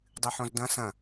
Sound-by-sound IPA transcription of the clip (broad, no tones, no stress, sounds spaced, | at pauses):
dˤ ɨ ħ õ z d ɐ̃ s ɐ̃